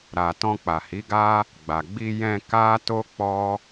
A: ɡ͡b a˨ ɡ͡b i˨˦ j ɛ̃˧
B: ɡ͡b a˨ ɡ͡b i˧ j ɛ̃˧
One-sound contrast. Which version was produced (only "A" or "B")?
B